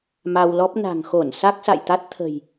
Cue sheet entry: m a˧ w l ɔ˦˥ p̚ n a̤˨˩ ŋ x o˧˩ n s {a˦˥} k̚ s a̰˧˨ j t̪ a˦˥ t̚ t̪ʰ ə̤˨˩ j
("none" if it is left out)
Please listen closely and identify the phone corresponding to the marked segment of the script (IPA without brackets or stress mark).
a˦˥